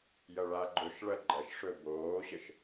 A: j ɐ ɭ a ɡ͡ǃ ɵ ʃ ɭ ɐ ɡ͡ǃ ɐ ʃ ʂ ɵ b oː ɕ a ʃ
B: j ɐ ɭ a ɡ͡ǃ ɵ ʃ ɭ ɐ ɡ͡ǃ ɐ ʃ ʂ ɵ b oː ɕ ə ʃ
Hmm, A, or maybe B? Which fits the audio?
B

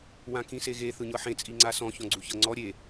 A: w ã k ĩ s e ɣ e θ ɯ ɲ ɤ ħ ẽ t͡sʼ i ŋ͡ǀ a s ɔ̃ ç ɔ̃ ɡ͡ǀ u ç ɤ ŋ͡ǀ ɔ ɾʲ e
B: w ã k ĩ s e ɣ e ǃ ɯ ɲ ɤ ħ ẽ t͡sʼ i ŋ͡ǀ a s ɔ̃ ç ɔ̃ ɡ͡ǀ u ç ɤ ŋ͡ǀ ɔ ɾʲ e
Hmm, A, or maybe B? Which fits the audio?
A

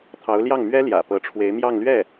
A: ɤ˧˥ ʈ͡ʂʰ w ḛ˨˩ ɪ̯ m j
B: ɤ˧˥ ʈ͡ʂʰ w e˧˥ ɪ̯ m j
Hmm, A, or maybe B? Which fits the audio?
B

